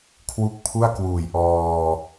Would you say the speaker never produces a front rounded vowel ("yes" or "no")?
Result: yes